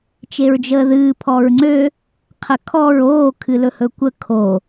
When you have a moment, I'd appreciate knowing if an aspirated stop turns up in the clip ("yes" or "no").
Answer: yes